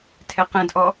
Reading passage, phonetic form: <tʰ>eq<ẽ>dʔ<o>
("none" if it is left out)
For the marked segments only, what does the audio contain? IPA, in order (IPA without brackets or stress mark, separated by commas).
tʰ, ẽ, ɔ